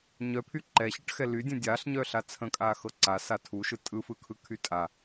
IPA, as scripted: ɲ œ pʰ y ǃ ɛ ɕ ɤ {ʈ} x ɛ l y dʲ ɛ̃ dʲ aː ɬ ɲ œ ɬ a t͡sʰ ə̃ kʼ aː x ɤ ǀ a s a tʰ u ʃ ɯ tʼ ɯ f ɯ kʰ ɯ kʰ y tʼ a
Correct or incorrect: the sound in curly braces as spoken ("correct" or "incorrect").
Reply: correct